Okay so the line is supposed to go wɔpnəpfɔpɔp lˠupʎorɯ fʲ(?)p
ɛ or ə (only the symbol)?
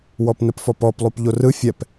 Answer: ɛ